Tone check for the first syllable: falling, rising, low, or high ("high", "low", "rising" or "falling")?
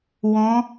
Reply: rising